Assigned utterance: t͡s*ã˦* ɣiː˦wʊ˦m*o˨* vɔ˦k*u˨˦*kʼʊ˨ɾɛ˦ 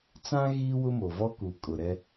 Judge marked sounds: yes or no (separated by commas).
yes, yes, no